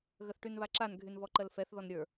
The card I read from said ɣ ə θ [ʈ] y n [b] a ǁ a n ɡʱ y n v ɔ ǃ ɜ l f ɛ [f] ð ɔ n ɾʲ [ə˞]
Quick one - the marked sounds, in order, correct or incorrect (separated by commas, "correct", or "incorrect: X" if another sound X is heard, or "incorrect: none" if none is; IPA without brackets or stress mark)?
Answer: correct, incorrect: β, incorrect: θ, correct